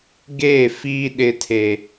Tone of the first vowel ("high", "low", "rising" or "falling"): falling